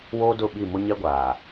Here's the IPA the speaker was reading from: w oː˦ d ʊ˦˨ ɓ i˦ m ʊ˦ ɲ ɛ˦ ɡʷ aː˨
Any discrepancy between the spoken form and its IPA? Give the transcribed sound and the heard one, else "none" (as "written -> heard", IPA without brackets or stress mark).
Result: i˦ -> i˦˨